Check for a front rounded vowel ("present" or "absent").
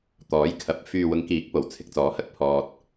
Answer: present